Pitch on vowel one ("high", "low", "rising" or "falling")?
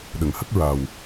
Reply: low